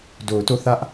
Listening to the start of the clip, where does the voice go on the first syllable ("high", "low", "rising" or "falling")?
low